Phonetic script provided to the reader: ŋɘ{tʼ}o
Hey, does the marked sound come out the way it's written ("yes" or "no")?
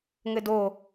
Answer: no